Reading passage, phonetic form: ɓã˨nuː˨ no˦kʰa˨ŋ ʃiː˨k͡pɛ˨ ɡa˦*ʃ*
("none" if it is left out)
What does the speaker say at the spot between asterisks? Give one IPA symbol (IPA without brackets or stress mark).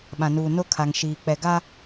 none